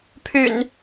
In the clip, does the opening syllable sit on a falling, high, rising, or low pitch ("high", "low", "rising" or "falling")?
low